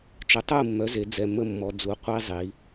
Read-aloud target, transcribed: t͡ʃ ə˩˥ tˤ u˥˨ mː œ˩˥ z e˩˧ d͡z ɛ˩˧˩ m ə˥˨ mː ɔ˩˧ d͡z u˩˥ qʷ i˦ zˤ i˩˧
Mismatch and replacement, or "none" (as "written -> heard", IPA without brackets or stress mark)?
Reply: none